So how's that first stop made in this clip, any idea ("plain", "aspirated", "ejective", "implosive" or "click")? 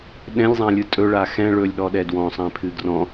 implosive